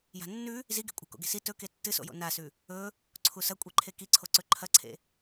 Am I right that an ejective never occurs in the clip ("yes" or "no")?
no